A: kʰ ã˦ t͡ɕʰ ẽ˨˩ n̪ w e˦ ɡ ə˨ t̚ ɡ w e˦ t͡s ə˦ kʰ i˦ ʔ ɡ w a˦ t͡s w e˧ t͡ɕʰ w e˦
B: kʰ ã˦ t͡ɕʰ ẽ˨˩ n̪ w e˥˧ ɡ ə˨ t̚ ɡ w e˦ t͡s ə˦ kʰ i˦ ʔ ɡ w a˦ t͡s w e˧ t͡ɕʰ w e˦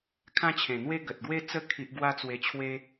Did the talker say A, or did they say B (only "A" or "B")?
A